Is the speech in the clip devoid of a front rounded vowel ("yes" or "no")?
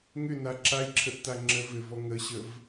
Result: no